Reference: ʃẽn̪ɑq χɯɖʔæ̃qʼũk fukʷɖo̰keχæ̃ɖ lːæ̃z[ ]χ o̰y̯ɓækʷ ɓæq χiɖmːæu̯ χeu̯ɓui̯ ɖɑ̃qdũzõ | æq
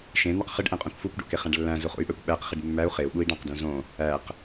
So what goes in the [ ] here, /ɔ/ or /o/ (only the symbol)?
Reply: o